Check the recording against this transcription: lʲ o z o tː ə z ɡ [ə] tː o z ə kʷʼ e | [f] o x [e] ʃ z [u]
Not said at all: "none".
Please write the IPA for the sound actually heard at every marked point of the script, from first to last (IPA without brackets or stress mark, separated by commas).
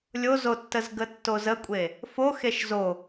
ə, f, e, o